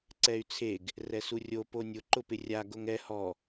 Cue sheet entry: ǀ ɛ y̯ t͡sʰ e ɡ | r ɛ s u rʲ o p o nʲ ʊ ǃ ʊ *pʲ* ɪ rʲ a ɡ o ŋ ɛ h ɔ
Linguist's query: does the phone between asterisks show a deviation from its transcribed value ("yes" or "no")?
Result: yes